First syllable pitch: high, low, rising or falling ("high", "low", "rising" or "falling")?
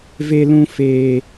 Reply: high